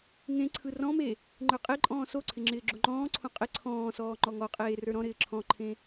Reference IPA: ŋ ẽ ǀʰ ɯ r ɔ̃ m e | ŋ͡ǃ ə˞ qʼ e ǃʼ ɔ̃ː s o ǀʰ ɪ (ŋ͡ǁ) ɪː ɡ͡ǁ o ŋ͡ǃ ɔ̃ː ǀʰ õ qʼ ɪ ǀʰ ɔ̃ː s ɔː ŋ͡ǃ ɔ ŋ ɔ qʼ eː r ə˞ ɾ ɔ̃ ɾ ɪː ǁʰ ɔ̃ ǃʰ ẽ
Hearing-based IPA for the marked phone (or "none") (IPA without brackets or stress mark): ŋ͡ǁ